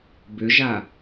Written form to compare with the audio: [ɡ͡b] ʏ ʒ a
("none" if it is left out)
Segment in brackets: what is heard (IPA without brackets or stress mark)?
b